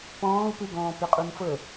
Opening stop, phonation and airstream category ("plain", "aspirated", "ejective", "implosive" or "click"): plain